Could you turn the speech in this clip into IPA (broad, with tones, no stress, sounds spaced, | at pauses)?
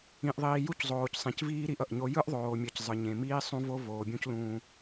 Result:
ĩ˨ ʔ ðˤ iː˨ j u˦ c zˤ oː˨ c sˤ ẽ˨ c v iː˦ ɾ i˦ ʔ ʌ˨ ʔ ɲ o˦ j ɯ˦ ʔ ðˤ oː˨ mʲ ʌ˨ c zˤ ɯ˨ ɲ ẽ˨ m iː˦ sˤ ũ˦ v o˦ v oː˨ bʲ ũ˦ c l ũː˦